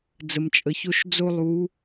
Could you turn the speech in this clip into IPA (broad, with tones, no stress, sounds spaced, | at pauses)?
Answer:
d͡z ə˩ m t͡ʃʼ ə˩ ç o˧ ʃ d͡z o˧ lˠ u˩˧